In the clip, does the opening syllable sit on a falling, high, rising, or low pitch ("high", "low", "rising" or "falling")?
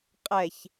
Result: low